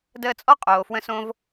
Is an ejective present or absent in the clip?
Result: present